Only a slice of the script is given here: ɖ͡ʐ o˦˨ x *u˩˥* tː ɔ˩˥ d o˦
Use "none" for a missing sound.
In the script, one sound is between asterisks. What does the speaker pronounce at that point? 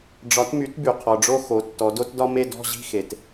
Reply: o˩˥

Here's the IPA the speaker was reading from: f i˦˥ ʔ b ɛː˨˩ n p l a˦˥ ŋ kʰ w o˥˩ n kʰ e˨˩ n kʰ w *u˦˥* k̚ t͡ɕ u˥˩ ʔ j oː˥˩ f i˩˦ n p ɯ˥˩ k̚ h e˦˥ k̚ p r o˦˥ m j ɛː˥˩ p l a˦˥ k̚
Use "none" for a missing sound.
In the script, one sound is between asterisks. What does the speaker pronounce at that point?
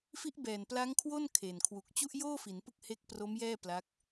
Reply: u˨˩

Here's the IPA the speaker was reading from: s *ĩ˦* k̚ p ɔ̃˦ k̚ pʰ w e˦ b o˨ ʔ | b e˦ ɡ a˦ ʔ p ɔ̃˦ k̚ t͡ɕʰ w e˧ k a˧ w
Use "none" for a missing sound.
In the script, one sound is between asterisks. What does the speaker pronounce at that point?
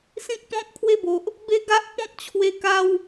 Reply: ĩ˦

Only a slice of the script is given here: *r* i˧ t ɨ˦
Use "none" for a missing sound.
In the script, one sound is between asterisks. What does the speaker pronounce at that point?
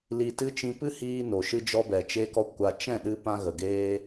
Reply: l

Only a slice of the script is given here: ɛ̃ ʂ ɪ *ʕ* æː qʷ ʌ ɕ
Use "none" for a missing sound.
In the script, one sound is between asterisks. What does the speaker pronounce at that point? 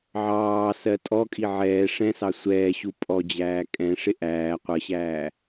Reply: ʔ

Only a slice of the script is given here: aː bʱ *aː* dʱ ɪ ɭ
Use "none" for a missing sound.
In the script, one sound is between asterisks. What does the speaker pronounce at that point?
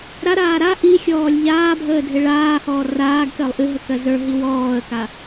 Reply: əː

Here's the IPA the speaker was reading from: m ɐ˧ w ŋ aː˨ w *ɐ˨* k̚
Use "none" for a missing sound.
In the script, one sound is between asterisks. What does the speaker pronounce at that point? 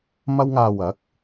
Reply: ɐ˨˥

